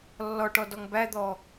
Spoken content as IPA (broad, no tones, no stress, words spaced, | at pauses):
lːɔʈɔ dɔŋbæd̪ɔ